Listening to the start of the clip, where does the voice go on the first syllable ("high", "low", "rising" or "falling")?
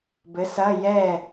rising